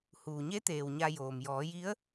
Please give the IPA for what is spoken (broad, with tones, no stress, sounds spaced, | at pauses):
h uː˩ ɲ e˧˥ t̪ eː˩ w ɲ a˧ j oː˩ m j ɔː˩˧ j i˧˥ ə̯